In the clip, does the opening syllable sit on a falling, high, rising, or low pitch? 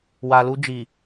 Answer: low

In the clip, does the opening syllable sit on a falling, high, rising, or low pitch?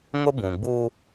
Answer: high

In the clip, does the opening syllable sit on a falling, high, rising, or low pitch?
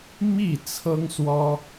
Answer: falling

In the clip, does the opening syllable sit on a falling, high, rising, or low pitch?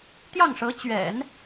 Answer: falling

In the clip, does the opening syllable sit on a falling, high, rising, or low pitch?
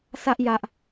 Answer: high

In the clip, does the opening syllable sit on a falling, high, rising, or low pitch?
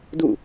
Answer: falling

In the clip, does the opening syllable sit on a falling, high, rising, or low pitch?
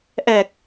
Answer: low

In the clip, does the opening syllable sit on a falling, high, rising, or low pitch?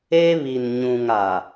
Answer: high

